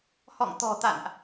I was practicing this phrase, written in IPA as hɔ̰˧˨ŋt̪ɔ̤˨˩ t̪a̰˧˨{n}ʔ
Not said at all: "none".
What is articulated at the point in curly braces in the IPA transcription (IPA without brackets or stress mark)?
n